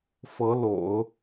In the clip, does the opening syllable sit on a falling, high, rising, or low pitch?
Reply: rising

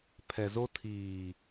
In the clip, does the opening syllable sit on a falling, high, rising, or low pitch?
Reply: low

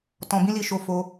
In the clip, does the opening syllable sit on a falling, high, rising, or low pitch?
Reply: low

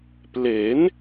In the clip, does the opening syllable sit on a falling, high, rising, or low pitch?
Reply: rising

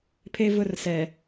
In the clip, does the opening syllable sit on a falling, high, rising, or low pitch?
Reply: high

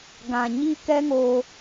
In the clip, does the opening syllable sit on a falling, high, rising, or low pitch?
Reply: low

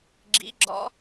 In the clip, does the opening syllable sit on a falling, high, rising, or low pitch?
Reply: rising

